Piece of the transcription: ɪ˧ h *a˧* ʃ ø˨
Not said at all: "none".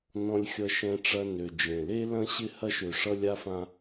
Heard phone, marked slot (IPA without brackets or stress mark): ɐ˧